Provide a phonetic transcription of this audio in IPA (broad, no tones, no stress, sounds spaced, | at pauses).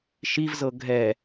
ʃ i v z ɤ ɡʱ ɛ